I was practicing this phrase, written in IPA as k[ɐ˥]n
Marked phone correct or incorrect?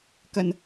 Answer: incorrect